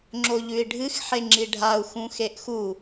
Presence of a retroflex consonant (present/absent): present